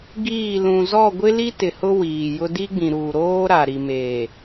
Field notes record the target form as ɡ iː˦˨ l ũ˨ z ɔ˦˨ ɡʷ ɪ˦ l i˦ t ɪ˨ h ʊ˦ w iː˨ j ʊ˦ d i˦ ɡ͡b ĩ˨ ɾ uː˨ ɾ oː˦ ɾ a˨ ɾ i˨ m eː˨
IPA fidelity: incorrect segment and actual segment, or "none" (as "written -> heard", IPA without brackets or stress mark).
none